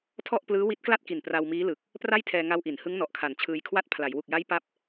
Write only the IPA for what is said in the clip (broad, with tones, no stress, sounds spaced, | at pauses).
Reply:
tʰ ɔ˥˩ ʔ p l ɯː˦˥ w i˦˥ t̚ k l a˥˩ t̚ k i˨˩ n p r a˧ w m iː˦˥ l ɯ˨˩ k̚ | p r a˥˩ j tʰ ɛː˧ ŋ a˧ w ʔ i˩˦ n h ɯ˦˥ ŋ n ɔ˨˩ ʔ kʰ a˨˩ n t͡ɕʰ ɯː˧ j kʰ w a˥˩ t̚ pʰ l a˩˦ j w u˨˩ k̚ j a˦˥ j p a˦˥ p̚